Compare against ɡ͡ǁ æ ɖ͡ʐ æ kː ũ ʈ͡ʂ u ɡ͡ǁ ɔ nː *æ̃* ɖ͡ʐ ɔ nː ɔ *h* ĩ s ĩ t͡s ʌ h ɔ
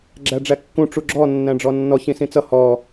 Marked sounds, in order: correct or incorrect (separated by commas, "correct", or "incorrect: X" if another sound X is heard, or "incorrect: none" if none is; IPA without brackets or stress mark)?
correct, incorrect: ç